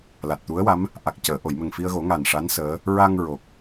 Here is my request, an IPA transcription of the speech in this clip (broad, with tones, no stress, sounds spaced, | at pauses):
l a˨˩ t̚ t̪ u˧˥ ə̯ w a˧˥ m | ʔ a˨˩ k̚ c əː˨˩˨ ʔ o˨˩˨ j m ə˨˩ ŋ f i˧ ə̯ ɣ o˨˩˦ ŋ a˨˩ n ʂ a˧˥ n s əː˧˥ | ɹ a˧ ŋ ɹ o˨˩ k̚